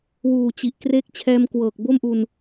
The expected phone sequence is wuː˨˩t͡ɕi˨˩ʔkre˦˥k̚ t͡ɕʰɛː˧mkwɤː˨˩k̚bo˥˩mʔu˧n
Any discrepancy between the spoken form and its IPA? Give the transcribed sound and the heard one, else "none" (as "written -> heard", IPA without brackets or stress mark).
none